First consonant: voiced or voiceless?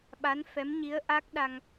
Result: voiced